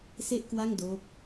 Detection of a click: absent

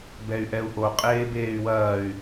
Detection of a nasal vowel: absent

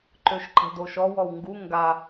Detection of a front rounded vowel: present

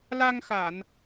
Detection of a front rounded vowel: absent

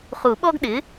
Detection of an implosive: present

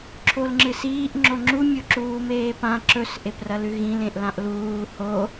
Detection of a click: present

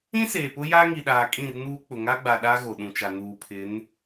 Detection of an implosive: present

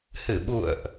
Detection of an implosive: present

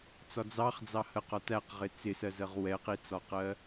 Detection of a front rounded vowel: absent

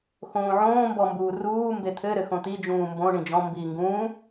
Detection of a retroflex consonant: present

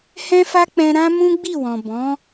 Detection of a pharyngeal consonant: absent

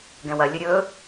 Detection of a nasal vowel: present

